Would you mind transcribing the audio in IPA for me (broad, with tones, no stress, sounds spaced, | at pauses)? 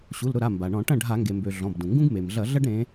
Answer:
ɕ u˩˧˩ l ɾ ʊ˥˩ ɾ a˩˧˩ m b a˩ ɳ ɔ̃˧˩˧ ʈ ɐ̃˥˩ ɖʱ a˧˩˧ ŋ ɡ e˩ m b ø˩ ɮ ɔ̃˩˧˩ b d ũ˩ ŋ ɡ ũ˥ ɡ m e˩ m ɮ ɐ˧˩˧ ɮ ɐ˥ ɖ ɾ ẽ˨˦